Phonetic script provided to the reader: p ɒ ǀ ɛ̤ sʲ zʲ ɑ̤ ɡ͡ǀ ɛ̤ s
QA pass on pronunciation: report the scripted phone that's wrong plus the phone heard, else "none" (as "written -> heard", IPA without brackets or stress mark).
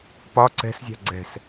sʲ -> s